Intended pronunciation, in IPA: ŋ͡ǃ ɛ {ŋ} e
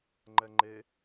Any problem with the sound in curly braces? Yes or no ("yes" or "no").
yes